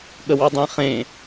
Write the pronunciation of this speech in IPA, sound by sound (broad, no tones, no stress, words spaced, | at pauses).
ɠəwɑdˤẽχẽ